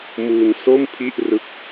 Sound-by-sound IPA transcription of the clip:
m u˧ n s o˥˩ m pʰ i˥˩ ʔ r ɯ˦˥ k̚

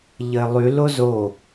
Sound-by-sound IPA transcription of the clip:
ʎ ə ɪ̯ lˠ y l o z o

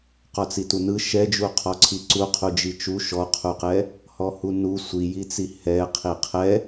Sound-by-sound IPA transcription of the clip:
q ɔ t͡s i t u n ɯ ʃ ɛ d͡ʒ u qʰ ɔ ǀʰ i ǀ u qʰ u d͡ʒ i t͡ʃ u ʃ ɔ qʰ u q ɛ | h ɔ h u n u sʷ i j i t͡s i h ɛ qʰ i qʰ ɛ

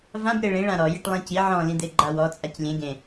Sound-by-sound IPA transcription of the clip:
v ã b ɾ e ɭ ĩ ɭ ã ɾ ɔ j i ʈ lˠ ĩ c i ʕ ɔ̃ l ĩ d̪ e ɡ͡ǃ a w ɔ t͡sʼ a c lʲ ẽ ɡ ẽ

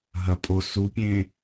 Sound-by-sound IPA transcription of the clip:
ɦ ɐ pʼ o s u pʲ ẽ

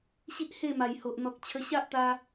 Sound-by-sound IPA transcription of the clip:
ɕ i˦ ʔ h e˥˧ m a˨˩ j h o˨ ʔ n̪ ɔ˨ k̚ t͡ɕʰ ə˧ ɕ a˦ ʔ t̪ a˧

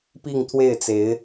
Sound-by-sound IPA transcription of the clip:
p i˥˧ ŋ t̪ʰ w e˥˩ ɪ̯ t͡s e˧˥ ɪ̯

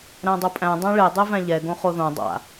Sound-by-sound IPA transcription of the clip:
ɾ æ̃ dˤ o pʼ æ̃ dˤ æ̃ ɭ e dˤ e v æ̃ ʎ ɛ ɡ õ χ o ð õ dˤ a̰

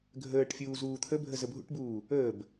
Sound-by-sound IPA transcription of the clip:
ɡʱ əː ʈ fʲ uː z uː t̪ʰ ə bʱ ə z ə bʱ ṵ ʈ b uː | əː b

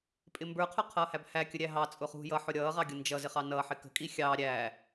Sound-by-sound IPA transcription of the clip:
pʼ ɪ m b ə˞ qʰ ʊ qʰ ʌː h æ b h æ kʲ ə ɾʲ æ ɦ ɑ t͡sʼ ʊ χ ṳ j ʌ ħ ʊ ɾʲ ʌː ʁ ɑ ɡʲ ʊ n d͡ʒ ʌ z ɪ χ ɑ n ʌː ħ ɪ k ə̤ kʼ i xʲ ɑ ɾʲ æ

